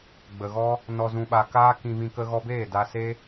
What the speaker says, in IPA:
ɡ͡b ə˨ ɣ ɔ˦ | n ɔ˨ z ũ˨ ɓ a˨ k aː˦ k ĩ˧ v ĩ˧ k ə˧ ɣ ɔ˧ b eː˦˨ d a˧ s e˦

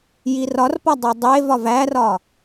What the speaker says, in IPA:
j i r ɒ r p ɒ dˤ o dˤ e v ɒ v æ r ɒ

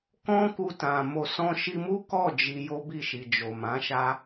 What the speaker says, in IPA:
k ɔ̃˦ k u˧ t ã˨ m o˨ s ɔ̃˧ ʃ i˧ m u˦ k ɔ˦˨ d͡ʒ i˧ j o˦ b i˦˨ ʃ i˨ d͡ʒ o˨ m ã˨˦ ʃ a˦

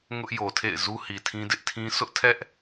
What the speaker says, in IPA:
ŋ ʊ˦ ʔ j o˨ tʰ ḛ˦˨ ɪ̯ z u˦ h i˨ tʰ ĩ˦ d ɪ˦ ʔ tʰ ĩ˦ sʰ ʊ˦ ʔ tʰ ɛ˦ ʔ

